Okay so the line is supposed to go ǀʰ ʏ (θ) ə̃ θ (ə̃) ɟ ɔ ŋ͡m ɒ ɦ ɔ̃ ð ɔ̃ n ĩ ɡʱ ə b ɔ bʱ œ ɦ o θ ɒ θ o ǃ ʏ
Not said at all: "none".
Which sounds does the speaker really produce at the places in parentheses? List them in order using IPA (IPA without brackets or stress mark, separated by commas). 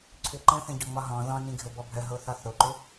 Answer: ǃ, ə̃